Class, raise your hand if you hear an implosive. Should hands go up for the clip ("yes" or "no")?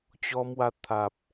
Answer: no